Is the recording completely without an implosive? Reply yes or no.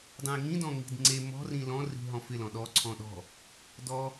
no